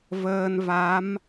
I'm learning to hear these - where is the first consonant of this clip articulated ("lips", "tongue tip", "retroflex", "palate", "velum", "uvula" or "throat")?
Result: lips